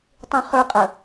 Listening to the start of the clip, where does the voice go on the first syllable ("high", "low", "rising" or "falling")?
high